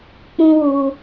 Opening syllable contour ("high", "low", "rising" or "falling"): high